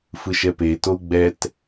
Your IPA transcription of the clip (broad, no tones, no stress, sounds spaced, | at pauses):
f ɯ ʃ ɛ p e t o u̯ ɡ͡b ɛ t